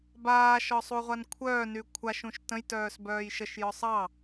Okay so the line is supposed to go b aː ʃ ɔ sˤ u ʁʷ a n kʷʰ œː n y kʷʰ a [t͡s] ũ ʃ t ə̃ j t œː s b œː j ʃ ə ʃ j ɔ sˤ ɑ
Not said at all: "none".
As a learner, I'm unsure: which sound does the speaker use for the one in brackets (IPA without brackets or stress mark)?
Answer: ʃ